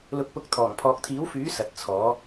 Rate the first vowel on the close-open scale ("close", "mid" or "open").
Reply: close